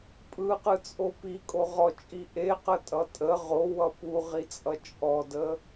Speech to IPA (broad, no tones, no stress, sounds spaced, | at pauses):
pʼ ɯ q ɯ t͡sʼ o p i kʼ o ʁ ɔ t͡ʃʼ i ʔ e q ə tʼ ʌ tʼ ə ʁ o w ʌ p u ʁ i t͡sʼ ʌ t͡ʃʼ ɔ d ə